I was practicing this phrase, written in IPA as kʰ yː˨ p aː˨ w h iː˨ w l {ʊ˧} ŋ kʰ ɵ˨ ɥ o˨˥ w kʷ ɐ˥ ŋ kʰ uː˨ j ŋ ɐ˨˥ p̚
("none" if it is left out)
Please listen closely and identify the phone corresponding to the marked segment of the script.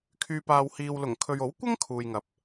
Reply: ʊ˨˩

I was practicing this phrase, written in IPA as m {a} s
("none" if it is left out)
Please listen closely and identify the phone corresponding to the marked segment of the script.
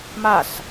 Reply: a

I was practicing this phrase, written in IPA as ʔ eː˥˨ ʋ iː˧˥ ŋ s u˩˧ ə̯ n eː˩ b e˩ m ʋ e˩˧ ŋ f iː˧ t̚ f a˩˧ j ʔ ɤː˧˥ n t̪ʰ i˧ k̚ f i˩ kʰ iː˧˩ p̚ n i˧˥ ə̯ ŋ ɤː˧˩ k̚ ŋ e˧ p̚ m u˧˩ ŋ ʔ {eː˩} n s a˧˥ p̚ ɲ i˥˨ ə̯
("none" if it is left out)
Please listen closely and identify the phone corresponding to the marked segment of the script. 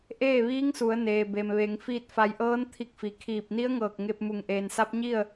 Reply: eː˩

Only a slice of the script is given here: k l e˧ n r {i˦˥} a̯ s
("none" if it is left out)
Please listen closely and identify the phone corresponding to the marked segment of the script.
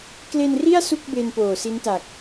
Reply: i˥˩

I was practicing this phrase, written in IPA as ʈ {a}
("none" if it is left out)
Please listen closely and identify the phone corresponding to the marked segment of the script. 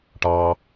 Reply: ɑ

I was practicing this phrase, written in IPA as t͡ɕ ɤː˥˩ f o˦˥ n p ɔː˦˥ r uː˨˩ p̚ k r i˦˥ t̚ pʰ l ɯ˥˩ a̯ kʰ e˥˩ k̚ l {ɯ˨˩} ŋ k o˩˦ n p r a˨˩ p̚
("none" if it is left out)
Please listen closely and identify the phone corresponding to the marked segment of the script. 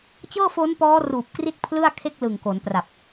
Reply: ɯ˨˩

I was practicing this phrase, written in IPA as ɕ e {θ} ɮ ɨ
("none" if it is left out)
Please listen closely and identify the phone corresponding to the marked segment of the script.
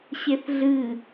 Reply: θ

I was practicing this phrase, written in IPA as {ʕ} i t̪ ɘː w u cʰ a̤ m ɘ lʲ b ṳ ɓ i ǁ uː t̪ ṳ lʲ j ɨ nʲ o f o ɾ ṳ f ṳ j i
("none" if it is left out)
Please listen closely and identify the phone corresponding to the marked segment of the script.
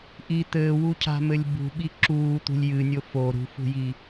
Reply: ʔ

